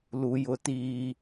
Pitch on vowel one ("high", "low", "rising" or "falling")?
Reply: low